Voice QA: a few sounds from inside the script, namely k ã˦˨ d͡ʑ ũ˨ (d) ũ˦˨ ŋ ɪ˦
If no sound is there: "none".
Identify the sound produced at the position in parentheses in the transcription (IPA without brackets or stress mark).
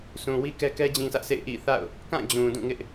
d